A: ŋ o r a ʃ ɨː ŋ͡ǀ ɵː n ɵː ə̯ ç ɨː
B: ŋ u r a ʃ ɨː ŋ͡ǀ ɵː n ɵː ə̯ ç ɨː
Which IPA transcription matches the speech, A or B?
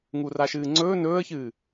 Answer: B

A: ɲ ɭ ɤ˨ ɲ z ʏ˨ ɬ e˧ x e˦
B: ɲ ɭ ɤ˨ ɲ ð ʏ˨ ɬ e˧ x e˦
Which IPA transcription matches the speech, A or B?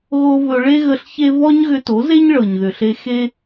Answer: B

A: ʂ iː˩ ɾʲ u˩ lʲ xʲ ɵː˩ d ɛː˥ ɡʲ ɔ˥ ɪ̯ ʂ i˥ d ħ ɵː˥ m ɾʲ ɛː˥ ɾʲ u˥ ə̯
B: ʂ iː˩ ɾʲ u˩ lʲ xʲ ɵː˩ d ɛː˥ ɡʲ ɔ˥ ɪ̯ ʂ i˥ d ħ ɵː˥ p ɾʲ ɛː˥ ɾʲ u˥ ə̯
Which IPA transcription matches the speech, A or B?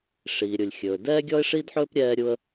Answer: B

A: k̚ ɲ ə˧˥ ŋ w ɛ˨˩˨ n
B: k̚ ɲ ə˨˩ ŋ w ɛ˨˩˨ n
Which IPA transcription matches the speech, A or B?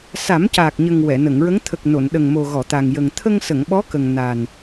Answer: B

